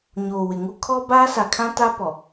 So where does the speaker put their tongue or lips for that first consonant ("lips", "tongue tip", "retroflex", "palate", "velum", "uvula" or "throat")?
palate